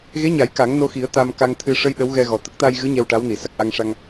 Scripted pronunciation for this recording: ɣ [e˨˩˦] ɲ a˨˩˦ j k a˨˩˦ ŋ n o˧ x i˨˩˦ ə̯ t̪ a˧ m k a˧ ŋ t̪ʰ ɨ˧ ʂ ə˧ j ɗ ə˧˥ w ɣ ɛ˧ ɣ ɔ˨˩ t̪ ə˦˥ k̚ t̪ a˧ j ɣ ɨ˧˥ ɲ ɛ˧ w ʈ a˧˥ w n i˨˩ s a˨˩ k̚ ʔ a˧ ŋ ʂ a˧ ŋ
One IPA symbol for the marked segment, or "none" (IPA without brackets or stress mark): e˧˥